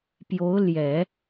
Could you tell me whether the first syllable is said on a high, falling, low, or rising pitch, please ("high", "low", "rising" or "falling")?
rising